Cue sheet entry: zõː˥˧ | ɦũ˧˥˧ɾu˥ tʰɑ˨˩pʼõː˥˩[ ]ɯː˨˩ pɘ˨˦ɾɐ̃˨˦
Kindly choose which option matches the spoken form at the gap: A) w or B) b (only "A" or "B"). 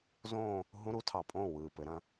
A